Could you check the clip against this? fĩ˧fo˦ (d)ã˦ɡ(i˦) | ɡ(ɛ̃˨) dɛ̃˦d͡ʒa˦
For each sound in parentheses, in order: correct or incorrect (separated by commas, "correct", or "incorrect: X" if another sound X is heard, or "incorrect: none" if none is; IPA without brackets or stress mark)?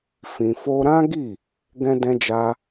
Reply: incorrect: ɾ, incorrect: i˦˨, incorrect: ɛ̃˦